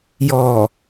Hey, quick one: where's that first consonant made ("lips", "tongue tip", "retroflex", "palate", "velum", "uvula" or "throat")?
palate